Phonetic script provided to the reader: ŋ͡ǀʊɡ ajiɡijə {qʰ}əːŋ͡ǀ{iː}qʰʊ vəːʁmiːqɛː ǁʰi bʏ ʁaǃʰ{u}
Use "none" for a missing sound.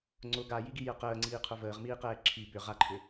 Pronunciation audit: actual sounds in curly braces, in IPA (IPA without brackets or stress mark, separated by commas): q, iː, ʏ